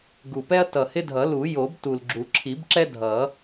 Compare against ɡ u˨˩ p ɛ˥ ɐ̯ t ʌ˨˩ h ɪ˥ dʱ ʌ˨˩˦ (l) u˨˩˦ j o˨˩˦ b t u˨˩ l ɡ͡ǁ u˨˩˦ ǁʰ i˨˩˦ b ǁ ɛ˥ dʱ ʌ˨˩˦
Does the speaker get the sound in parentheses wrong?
no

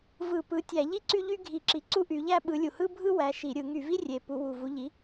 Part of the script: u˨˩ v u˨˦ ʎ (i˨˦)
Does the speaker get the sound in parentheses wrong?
no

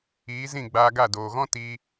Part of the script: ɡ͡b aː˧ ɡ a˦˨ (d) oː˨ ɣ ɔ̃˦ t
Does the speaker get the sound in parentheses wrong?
no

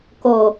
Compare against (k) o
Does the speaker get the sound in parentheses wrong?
no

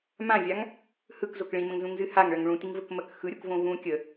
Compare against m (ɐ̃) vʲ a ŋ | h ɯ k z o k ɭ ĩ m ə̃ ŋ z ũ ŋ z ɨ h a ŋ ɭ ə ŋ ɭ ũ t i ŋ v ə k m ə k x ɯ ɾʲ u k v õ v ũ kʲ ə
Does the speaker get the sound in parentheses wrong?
yes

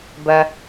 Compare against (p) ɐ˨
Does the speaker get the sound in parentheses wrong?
yes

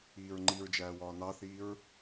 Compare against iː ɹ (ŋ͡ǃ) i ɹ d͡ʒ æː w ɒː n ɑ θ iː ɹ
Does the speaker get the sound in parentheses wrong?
no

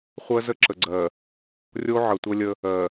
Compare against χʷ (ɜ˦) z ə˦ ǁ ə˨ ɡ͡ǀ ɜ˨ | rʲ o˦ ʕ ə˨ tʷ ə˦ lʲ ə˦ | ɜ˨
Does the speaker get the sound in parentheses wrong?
no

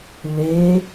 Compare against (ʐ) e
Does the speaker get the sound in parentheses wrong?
yes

